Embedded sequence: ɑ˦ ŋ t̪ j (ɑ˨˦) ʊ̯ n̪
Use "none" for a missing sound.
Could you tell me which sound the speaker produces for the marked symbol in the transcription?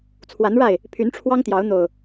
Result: ɑ˨˦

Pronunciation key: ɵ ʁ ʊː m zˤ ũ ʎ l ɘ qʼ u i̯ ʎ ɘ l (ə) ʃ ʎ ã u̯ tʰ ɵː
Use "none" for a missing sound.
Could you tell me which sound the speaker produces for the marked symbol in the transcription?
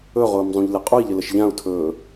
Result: ə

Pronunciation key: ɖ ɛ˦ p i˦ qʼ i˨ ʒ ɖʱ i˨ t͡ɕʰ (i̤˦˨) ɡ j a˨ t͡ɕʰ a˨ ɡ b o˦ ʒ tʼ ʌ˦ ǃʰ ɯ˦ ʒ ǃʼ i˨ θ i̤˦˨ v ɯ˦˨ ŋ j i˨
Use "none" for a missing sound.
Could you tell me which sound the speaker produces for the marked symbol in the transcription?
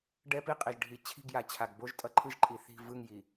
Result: i̤˦˨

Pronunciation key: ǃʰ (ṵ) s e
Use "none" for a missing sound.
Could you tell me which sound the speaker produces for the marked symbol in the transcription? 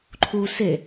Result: u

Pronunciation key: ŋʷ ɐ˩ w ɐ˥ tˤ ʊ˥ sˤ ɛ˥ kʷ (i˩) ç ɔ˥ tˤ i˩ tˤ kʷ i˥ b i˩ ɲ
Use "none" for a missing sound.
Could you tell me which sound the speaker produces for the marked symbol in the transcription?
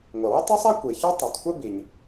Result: i˩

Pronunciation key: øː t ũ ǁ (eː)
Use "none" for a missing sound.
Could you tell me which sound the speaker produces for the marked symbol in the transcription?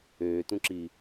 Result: iː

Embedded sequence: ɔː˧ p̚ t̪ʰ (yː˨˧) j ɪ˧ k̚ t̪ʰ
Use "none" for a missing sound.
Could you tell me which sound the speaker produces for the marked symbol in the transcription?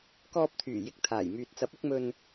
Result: yː˨˩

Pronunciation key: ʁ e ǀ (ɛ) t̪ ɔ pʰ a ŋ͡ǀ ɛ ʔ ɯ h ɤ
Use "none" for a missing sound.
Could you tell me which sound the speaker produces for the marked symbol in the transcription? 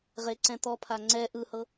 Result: ɛ̃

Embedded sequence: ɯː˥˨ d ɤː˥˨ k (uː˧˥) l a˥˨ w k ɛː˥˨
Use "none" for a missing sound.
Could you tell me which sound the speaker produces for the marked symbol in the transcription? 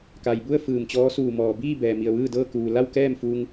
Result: uː˩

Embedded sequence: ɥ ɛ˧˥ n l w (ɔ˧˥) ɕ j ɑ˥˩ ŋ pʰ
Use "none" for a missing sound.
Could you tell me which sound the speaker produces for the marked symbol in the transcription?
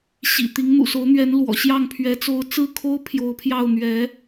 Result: ɔ̰˨˩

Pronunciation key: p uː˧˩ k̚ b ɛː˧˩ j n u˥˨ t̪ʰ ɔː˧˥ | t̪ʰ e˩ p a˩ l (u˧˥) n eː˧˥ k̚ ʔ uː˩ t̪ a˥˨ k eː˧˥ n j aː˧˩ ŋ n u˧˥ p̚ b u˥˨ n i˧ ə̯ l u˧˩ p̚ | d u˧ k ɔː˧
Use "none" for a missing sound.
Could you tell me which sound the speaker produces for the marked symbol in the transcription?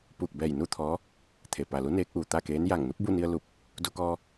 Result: u˧˥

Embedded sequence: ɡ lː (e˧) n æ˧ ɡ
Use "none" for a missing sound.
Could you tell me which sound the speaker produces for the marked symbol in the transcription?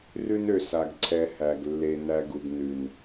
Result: e˧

